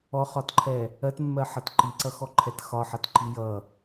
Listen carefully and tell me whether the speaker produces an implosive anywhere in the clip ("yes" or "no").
no